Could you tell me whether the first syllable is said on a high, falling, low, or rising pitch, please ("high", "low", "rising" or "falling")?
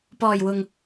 low